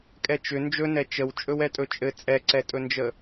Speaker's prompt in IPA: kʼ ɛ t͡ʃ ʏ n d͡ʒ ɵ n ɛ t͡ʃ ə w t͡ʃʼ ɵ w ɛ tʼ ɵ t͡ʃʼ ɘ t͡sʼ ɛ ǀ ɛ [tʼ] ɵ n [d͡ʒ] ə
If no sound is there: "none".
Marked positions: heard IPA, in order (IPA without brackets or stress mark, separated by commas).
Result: tʼ, d͡ʒ